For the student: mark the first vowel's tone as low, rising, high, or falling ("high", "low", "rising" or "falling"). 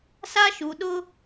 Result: high